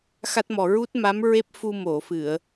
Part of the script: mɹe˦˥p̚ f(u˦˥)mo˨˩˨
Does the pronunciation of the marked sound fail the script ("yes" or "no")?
yes